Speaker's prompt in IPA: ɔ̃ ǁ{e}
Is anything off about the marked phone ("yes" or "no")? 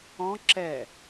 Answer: yes